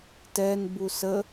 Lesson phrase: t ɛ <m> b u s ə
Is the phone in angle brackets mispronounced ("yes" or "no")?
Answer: yes